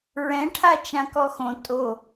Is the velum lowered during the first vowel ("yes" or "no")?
yes